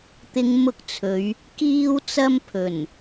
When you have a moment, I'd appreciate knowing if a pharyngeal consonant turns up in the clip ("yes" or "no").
no